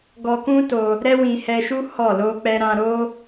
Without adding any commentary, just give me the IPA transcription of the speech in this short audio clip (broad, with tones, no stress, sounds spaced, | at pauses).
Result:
ɡ ɔ˧ k ũ˦ t o˧ | ɾ ɛ˦ w ĩ˧ h ɛ˧ ʃ u˦ h ɔ˦˨ l o˧ k͡p ɛ˧ ɾ ã˧ ɾ o˦